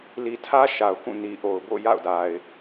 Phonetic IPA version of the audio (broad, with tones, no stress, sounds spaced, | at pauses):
l i˨ tʰ ä˦ ʃ a˨ ʊ̯ k ũ˦˨ n i˨ ʔ o˨ ʊ̯ b o̰˦˨ j a̰˦˨ ʊ̯ d a˨ ɪ̯